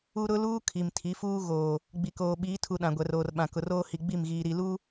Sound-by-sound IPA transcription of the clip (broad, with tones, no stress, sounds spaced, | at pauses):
u˦ ɾ ʊ˦ l uː˦ kʰ i˨ m tʰ i˨˦ f uː˦ ɣ oː˨ | ɡ͡b i˨ k oː˨ ɓ iː˨˦ tʰ u˨ ɗ ã˨ ɡʷ ɛ˨ r oː˨ r ɓ ã˨ k ʊ˨ r oː˦ h i˨ ɡ͡b i˦˨ m ɣ iː˨ ɾ i˨ l uː˦